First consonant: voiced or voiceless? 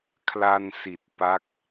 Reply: voiceless